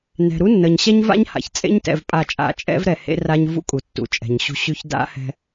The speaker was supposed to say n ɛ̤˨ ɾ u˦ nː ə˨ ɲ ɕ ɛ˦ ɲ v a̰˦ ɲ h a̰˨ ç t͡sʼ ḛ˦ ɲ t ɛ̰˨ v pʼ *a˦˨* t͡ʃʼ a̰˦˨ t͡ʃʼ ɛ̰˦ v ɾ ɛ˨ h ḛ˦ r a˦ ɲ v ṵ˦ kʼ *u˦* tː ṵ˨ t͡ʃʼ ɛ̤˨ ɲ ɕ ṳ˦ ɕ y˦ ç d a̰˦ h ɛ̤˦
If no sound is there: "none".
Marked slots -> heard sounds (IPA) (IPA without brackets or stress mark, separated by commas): a˦˨, u˨